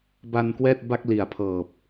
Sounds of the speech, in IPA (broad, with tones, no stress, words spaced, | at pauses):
ba˧nkwɛː˥˩t̚ba˥˩k̚ li˨˩a̯pʰɤː˨˩p̚